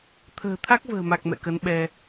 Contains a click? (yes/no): no